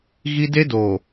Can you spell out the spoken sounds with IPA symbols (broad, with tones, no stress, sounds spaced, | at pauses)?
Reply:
ɣ i˦ d e˦ d oː˨